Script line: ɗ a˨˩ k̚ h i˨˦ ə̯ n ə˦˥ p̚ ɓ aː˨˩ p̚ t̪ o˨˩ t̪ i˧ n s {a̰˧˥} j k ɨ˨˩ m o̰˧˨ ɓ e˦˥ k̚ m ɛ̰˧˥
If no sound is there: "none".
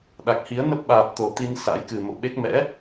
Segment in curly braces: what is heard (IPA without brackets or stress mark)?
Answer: a̰˧˥